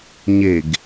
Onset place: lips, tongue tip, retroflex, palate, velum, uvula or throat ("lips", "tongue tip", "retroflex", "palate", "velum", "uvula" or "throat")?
palate